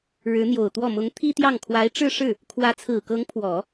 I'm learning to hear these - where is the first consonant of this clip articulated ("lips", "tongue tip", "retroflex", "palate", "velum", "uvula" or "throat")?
retroflex